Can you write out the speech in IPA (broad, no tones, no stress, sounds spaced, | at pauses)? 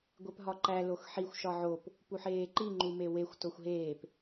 ɡʷ e p ɦ ɒ ǃ æ l o x ħ i xʷ ʃ ɒ ʕ o p | p u ħ eː ǃ i ŋ͡ǃ u m e w e xʷ t o xʷ ɦ eː p